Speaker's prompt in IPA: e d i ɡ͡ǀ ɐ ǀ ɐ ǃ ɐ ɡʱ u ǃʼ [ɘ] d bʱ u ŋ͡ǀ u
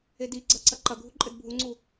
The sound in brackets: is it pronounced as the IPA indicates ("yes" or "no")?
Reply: yes